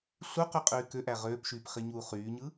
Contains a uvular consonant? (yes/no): yes